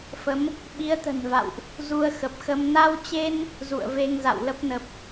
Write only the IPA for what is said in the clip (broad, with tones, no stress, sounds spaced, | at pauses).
f ə˨˦ m | ɓ i˨˦ ə̯ t̪ ə̤˨˩ n v a̰˧˨ w ʔ | z u˧ ə̯ x ə˨˩ p̚ x ə˧ m n a˧ w t͡ɕ e˧ n | z ṵ˧˨ ə̯ v e˧ ŋ z a̰˧˨ w l ə˦˥ p̚ n ə˨˩ p̚